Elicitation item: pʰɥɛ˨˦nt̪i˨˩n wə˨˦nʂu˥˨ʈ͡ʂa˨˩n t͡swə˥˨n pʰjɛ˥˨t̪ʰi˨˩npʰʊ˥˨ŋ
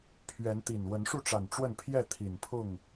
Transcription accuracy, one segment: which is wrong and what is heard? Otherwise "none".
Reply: t͡s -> ʈ͡ʂ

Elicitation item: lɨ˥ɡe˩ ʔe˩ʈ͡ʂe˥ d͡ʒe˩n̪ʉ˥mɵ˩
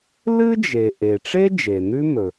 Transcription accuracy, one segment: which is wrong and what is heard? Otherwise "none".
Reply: ɡ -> d͡ʒ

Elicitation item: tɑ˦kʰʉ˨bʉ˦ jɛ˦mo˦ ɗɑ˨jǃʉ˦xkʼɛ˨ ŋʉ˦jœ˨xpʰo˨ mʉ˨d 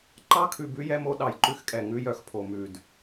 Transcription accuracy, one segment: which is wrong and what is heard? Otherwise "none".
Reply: t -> ǃ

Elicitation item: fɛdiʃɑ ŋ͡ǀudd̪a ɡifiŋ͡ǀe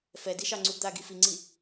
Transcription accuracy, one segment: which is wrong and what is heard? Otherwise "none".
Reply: e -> i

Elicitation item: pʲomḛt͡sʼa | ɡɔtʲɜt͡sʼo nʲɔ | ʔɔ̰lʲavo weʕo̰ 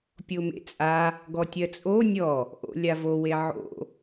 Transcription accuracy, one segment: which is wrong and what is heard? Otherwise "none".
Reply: ɔ̰ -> o̰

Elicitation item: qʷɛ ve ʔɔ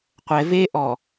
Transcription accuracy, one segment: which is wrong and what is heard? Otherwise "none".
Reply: none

